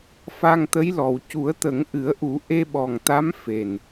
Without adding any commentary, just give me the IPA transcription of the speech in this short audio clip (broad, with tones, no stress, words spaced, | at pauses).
fa˧ŋt̪ə˧˥jlɔ˨˩w cu˨˩˦ə̯t̪ə˨˩˦ŋʔɨ˨˩˦ə̯ʔu˨˩˦ ʔe˧ɓɔ˨˩ŋt̪a˧˥m fe˨˩n